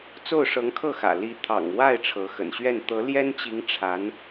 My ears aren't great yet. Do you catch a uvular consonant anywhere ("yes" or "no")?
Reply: no